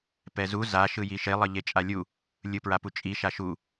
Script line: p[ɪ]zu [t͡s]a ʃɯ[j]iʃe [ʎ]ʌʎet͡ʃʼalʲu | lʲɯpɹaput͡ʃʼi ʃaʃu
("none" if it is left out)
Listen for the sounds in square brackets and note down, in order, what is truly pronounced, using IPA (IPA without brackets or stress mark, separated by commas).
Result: ɛ, z, j, lˠ